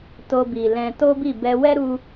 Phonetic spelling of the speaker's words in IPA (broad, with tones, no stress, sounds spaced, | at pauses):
t o˧ b i˨ l ɛ̃˧ t o˦ b i˦˨ b ɛ˧ w ɛ˦ ɾ u˧